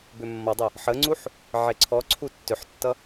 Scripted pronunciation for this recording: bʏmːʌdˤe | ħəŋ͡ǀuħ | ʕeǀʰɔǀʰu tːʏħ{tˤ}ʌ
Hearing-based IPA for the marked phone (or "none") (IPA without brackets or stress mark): tː